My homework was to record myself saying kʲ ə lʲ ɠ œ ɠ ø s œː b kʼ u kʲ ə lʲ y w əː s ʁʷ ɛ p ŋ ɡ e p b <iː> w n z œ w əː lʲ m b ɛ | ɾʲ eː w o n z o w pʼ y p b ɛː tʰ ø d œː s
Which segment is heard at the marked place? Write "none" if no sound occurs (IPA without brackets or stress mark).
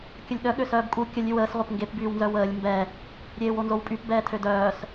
yː